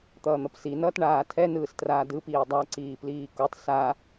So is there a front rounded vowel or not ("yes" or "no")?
no